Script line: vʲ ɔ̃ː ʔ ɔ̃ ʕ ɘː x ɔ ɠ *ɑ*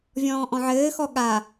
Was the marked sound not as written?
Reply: yes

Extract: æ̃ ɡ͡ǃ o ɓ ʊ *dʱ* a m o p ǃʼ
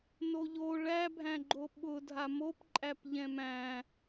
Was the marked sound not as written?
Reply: no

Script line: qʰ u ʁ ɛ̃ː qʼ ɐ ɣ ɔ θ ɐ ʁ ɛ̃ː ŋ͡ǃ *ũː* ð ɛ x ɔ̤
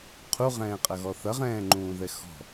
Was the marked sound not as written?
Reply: no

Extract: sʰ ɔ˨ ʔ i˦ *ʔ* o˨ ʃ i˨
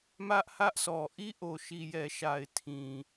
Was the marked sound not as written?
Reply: no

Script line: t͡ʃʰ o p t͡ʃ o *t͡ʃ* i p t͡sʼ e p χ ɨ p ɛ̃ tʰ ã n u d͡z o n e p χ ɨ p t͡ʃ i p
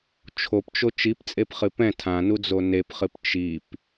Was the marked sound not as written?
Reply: no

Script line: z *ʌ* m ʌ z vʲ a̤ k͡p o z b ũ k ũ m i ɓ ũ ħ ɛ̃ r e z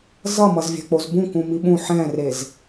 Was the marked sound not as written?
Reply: no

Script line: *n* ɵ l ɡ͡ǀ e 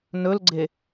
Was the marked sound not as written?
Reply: no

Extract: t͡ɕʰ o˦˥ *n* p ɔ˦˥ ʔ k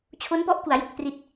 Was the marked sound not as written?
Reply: no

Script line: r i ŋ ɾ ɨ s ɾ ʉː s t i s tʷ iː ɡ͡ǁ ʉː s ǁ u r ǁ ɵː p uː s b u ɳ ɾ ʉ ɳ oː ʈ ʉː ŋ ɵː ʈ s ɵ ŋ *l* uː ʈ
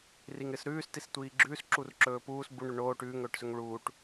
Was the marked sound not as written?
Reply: yes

